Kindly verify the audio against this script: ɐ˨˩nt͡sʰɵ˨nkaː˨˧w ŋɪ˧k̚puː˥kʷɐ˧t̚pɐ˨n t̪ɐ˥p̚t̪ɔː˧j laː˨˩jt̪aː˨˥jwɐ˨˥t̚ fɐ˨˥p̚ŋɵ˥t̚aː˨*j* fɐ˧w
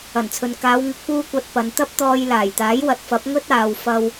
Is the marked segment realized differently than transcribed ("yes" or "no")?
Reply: yes